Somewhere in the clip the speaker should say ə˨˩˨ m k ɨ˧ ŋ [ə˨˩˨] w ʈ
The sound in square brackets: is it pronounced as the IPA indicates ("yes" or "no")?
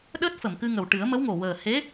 no